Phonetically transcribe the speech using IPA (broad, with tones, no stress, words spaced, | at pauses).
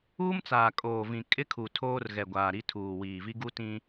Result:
uː˦mt͡saː˨kʼoː˨vĩ˨ kʼɪ˦kʰu˨tʰoː˦r ɣɛ˨ɡʷaː˨ɾi˦tʰuː˨ wiː˨vi˦ɡu˦tĩ˦